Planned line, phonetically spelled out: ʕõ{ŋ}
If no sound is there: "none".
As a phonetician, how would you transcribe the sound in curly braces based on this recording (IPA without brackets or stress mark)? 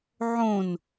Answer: n